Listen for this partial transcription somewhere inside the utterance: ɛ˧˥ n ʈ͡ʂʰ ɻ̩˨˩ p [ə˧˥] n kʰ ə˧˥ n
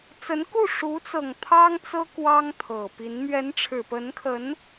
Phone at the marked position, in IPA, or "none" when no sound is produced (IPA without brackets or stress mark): ə˧˥